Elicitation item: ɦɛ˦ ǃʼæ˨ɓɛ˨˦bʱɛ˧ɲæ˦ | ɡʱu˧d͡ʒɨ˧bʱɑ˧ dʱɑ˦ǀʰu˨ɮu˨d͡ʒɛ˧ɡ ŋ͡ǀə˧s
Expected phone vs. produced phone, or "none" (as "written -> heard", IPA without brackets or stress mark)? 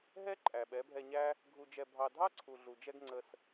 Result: ɨ˧ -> ɛ˧